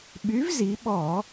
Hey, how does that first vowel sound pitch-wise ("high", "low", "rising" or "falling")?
rising